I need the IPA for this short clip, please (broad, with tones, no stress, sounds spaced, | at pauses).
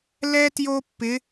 l ɛ˥ t j o˥ pː ɪ˧˥